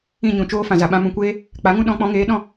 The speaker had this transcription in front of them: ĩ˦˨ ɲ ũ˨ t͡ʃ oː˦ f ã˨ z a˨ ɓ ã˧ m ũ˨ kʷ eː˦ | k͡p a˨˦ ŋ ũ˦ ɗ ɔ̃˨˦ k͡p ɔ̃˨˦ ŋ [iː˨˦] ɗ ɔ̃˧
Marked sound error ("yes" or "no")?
yes